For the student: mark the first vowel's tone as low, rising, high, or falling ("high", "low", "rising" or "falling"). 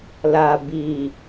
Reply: low